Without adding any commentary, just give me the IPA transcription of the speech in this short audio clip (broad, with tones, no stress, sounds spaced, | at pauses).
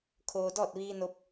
kʰ oː˧ d ɔː˥˨ t̚ ʋ iː˧ n o˧ p̚